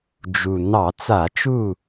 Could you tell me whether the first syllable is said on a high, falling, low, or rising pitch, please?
low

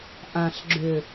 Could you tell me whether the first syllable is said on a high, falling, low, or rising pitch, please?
low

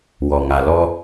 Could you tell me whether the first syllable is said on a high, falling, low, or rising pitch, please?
low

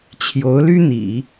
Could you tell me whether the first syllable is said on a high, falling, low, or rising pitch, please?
rising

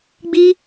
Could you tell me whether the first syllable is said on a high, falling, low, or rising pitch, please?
high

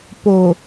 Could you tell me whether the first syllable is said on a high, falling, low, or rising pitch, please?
low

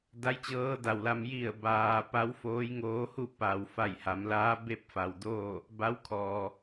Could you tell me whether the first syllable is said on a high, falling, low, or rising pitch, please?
rising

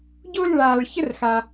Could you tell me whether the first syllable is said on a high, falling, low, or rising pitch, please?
high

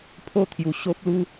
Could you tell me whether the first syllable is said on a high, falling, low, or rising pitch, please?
falling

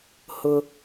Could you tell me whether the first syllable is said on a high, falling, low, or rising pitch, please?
high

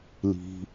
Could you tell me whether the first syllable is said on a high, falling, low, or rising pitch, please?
low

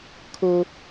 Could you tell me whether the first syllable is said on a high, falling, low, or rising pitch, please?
high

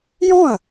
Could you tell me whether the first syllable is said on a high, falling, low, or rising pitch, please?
falling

